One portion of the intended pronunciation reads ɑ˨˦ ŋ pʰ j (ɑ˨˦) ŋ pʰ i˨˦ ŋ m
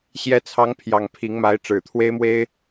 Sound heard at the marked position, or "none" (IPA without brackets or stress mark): ɑ˨˩